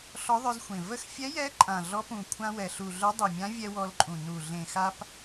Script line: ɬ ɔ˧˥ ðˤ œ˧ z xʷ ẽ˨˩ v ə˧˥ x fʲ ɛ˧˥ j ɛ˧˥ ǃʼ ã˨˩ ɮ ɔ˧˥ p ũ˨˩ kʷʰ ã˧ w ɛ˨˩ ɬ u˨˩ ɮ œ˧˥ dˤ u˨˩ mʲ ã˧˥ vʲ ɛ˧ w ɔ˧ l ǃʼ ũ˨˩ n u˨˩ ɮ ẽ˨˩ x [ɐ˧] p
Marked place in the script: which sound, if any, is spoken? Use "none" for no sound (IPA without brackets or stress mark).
a˧